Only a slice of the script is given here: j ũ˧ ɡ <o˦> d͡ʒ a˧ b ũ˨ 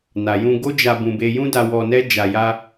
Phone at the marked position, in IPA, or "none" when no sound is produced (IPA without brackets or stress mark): o˦